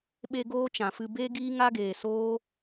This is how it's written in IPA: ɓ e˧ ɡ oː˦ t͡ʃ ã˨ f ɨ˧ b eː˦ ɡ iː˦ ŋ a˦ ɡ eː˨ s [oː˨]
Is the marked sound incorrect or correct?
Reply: incorrect